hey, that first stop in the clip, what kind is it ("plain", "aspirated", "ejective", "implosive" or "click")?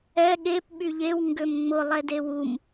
implosive